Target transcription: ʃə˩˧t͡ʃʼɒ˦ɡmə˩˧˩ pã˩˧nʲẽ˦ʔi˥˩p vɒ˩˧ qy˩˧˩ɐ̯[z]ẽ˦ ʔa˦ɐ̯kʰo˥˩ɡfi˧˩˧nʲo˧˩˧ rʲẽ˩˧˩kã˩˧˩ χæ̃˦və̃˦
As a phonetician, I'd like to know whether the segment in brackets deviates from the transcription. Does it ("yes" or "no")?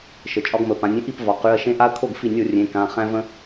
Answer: yes